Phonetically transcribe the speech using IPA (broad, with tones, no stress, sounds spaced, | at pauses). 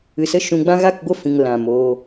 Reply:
ɨ˨ s ə˦˨ ʃ ũ˧ ɡ͡b ã˦ ɣ a˦˨ k ɡʷ ə˦˨ f ĩ˨ ŋ l ã˨ m oː˧